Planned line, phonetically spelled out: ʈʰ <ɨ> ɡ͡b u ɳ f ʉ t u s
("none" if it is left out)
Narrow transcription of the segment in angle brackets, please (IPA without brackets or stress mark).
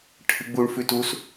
ɨ